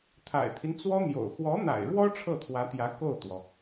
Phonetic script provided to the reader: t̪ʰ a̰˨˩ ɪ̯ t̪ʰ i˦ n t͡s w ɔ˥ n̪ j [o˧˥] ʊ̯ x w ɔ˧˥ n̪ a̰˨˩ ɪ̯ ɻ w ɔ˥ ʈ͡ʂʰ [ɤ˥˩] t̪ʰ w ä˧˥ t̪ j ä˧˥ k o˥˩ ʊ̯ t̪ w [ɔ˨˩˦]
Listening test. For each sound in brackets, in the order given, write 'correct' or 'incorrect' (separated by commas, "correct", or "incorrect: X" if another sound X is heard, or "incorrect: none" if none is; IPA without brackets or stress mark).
incorrect: o̰˨˩, correct, incorrect: ɔ˩